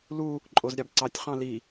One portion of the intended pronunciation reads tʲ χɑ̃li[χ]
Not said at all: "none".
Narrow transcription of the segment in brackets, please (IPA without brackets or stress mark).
none